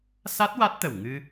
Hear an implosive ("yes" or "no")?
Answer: no